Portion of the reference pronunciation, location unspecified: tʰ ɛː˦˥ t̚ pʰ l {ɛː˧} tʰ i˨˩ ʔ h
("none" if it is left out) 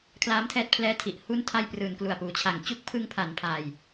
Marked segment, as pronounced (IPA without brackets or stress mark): ɛː˦˥